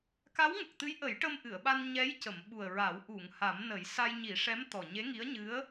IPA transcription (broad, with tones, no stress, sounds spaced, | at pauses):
k a˧˥ w ŋ ə˨˩ k̚ t̪ ɨ˧˥ j ʔ ə˨˩˦ j ʈ ə˧ m ʔ ɨ˨˩˨ ə̯ ɓ a˧ n ɲ ɛ˧˥ j c ə˨˩˨ m ɓ u˨˩ ə̯ ɹ a˨˩˦ w ʔ u˨˩˨ ŋ h a˨˩˦ m n ə˨˩˦ j s a˧ j ɲ i˨˩˦ ʂ ɛ˧˥ m t̪ ɔ˨˩ ɲ e˧˥ ŋ i˧˥ ə̯ ɲ ɨ˧˥ ə̯